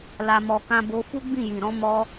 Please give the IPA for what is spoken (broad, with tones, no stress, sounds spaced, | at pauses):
l a˧ m ɔ˧ k ã˦ b o˦ f u˦ ɡ͡b ĩ˦˨ j ĩ˨ ɾ ɔ̃˨˦ m ɔ˧